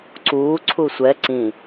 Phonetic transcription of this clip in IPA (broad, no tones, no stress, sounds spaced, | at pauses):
ǀ uː ǀʰ u sʷ ɛ ǀ ĩ